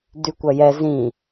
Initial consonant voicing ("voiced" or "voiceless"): voiced